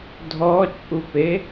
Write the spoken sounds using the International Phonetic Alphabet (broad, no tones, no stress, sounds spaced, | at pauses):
dʱ ɔ t͡ʃʼ u p e